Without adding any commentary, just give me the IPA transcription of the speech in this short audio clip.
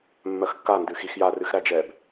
mː ɜ x kː a n d ɨ x i x j a r ɨ x ɾ æ d͡ʒ ɛ b

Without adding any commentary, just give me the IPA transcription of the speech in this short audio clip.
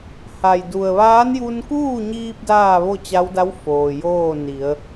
h a˩ j d u˩ ə̯ ʋ aː˧˥ n j u˧ n k uː˥˨ ɲ iː˧ p̚ d aː˥˨ ʋ o˥˨ t͡ɕ a˧˥ w d a˧˥ w f oː˩ j oː˥˨ n i˩˧ ə̯

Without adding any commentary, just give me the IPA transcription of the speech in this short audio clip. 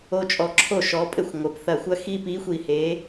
o˦ t͡ʃʼ ɔ˧˩ ǁʰ o˥˩ ʃ ɔ˨˥ pʼ ɘ˥˩ xʷ ŋʷ ɘ˩ p θ ɐ˧˩ xʷ ɐ˦ x i˦ p i˨˥ xʷ i˧˩ h e˨˥

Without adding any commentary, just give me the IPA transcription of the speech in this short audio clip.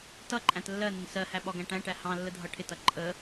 t ʌ ǃʼ æ̃ t lː ɜ n ɪ n s ɜ h æ ɓ ɒ ɡ æ̃ ʈ æ̃ ʈ æ h ɑ̃ lː ə dʱ ʌ ʈʰ ɪ t ʌ ǃʼ ə

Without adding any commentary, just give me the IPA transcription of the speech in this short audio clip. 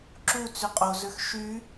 ǁ u t͡s y qʼ o z ø x ʃ y

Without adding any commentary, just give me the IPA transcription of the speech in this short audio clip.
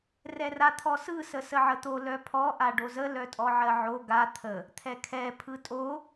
r ɛ r a t̪ʰ ɔ s ɯ s ə s ə ʕ ə t̪ o l œ pʰ ɔ ʔ a ɖ o z ə l œ tʼ ɔ ʕ ɜ ʕ o ɡ a t̪ʰ ə | t̪ʰ ɛ kʰ ɛ pʰ ɯ tʼ o

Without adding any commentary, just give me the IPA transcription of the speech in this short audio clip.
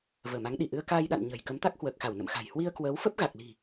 v əː˧˩ m a˨˦ ŋ ɗ i˧˩ ʔ ɨ˧ ə̯ k aː˧ j ɗ a̰˧˨ n ɲ ə̤˨˩ j k ə˨˦ m t̪ a˦˥ k̚ h w əː˨˩ k̚ x a˧˩ w n ə̰˧˨ m x a̤˨˩ j h w i˧ ə̯ k w əː˨˦ w f ə˦˥ p̚ ɣ a˨˩ k̚ l i̤˨˩

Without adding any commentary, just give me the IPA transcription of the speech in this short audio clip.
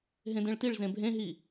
ɦ ẽ d ẽ ɭ t i ɭ z ẽ bʱ ẽ ɦ i

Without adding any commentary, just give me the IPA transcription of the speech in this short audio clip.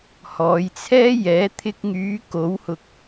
h ɔː˨˧ j t͡sʰ ɛː˥ j ɛː˨˥ t̪ʰ ɪ˧ k̚ ŋ yː˨˧ k o˨˥ w h ʊ˧ k̚

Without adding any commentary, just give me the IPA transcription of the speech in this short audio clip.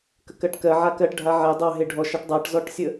k ə k ɜ ʈ k ɜ ʕ a k ɜ ʈ ɖʱ a ʕ e dˤ ɑ ɦ e ɖʱ ɔ ʃ a ʈ dˤ a ʈ z ɔ ʈ sʲ ə

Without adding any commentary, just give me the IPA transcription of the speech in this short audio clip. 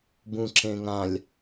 b ũ ǁ ẽ ŋ ã lʲ

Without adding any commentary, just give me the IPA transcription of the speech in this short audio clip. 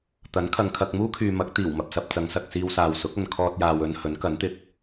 t̪ ɐ˨˥ n kʰ ɐ˨ ŋ kʰ ɐ˧ k̚ m uː˥ kʰ yː˨ m ɐ˨˥ k̚ t̪ iː˨˩ w m ɐ˨ p̚ s ɐ˧ p̚ t͡s ɐ˨˧ ŋ s ɐ˨ k̚ s iː˧ w s aː˨ w s ʊ˨˥ k̚ ɐ˨ n kʰ ɔː˧ t̚ j aː˨ w ɵ˧ n h ɵ˨˥ n k ɐ˨˥ n t̪ ɪ˧ k̚

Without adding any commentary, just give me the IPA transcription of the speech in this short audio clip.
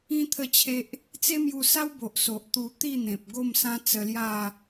ĩ˦ t̪ʰ ə˥˧ t͡ɕʰ e˦ ʔ | t͡s e˦ m j u˧ s a˦ w b o˨ ʔ s o˨ ʔ t̪ u˧ t̪ i˥˧ n̪ ẽ˨ p̚ ɡ o˥˧ m s ã˦ t͡s ə˧ l j a˥˧

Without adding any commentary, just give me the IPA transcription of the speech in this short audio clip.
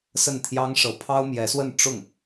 s ə˥˩ n t̪ʰ j ɑ˥ ŋ ʂ ɤ˧˥ pʰ ɑ˥ ʊ̯ m j ɛ˧˥ s w ə˥˧ n ʈ͡ʂ ʊ˥˩ ŋ

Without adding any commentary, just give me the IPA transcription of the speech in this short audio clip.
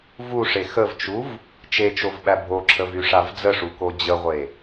v u ʂ e x ə v t͡ʃ u v | t͡ʃ e t͡ʃ o v ɓ æ bʱ o ǁʰ ə v y ʂ a v d͡z ə ʂ u k o d͡ʑ ə ʁʷ e

